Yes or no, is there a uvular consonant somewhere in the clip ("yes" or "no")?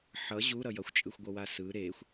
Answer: no